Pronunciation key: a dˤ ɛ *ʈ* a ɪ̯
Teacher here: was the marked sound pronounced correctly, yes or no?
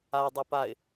no